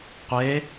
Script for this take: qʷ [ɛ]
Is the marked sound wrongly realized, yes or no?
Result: yes